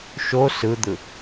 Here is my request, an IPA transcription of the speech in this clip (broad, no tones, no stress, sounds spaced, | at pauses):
ʃ o s ɯ d̪ ɯ